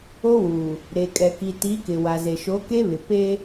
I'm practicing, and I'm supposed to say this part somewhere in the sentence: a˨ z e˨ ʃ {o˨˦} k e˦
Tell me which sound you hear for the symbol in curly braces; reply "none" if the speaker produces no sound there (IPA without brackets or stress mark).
o˨˦